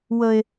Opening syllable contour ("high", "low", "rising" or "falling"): high